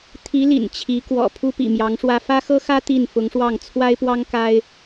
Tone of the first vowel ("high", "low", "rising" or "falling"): rising